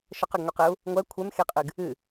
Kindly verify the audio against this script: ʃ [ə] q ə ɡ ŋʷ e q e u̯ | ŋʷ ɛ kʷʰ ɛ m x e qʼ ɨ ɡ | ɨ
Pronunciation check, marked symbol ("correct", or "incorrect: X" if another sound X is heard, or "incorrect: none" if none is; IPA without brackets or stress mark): correct